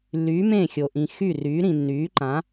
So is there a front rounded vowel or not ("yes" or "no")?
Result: yes